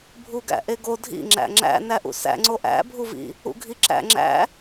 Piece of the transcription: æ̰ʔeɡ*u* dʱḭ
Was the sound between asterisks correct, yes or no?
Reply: no